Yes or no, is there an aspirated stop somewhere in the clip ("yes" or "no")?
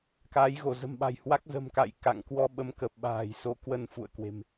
no